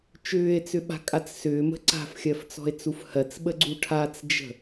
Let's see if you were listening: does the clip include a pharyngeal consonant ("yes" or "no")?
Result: no